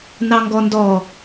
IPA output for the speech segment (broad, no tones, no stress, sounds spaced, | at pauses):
n ɑ ŋ ɡ ɔ n d ɔ